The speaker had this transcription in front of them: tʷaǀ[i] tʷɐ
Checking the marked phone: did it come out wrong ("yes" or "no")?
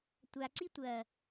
no